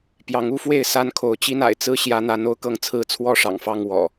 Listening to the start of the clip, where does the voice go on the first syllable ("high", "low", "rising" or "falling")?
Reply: rising